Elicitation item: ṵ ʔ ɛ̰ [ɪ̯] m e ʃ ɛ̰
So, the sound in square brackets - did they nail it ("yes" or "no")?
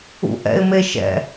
yes